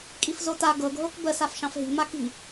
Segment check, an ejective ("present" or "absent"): present